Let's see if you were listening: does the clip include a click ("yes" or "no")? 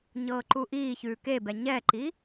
yes